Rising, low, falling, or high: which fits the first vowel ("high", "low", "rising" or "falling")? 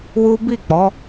high